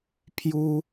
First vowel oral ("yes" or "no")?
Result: yes